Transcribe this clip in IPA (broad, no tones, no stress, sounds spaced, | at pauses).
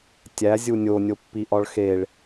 tʲ æ zʲ u nʲ o nʲ o pː i ʔ ɒ ɭ x e ɭ